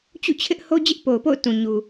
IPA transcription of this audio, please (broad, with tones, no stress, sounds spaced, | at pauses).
t͡ɕ ṵ˦˨ t͡ɕʰ ɪ˦ ʔ h o˦ d͡ʑ ɪ˦ ʔ p o˨ ʊ̯ p o̰˦˨ ʊ̯ t ũ˨ ɲ u˨